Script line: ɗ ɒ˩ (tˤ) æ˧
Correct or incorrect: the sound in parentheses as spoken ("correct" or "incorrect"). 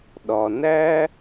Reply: incorrect